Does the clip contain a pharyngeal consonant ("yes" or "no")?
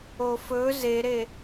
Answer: no